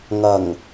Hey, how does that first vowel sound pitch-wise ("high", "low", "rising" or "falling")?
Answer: low